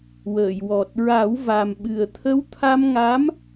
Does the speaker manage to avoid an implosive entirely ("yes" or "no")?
no